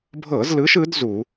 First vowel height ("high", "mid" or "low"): mid